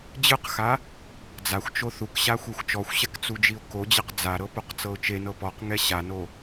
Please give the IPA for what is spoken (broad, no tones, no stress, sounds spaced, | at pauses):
d͡ʑ ɯ q x a | d͡z a xʷ t͡ʃ o θ u k ɕ a xʷ ɛ xʷ t͡ʃ ɔ xʷ ɕ ɛ k t͡s u d͡ʒ i ʊ̯ k o d͡ʑ e q d͡z a ɾ ɤ p o q t͡s ɤ ʊ̯ t͡ʃ e n ɤ p ɔ q ŋ ɛ ɕ a n o